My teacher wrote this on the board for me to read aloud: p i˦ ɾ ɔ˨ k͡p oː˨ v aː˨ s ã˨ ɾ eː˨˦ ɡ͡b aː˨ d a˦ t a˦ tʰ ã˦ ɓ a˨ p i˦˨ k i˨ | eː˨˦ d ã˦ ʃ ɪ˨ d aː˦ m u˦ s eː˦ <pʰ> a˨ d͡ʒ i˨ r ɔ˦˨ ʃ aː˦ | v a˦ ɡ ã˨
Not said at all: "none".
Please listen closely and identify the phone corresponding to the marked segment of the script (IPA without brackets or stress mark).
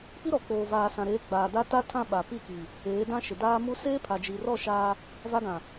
pʰ